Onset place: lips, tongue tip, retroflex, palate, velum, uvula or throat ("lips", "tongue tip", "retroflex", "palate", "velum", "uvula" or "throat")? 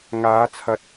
velum